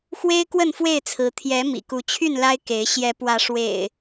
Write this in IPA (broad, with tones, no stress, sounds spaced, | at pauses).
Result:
x w e˦ ɪ̯ k w ə˥˨ n f w e˥˨ ɪ̯ t͡sʰ ɹ̩˨˦ t̪ʰ j ɛ˨˦ m ḭ˨˩ k u˨˦ t͡ɕʰ y˥˨ n l a˦ ɪ̯ k e˨˦ ɪ̯ ɕ j ɛ˨˦ p w ä˨˦ ʂ w ḛ˨˩ ɪ̯